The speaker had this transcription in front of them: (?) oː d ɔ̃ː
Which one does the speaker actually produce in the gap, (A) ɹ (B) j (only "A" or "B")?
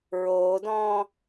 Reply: A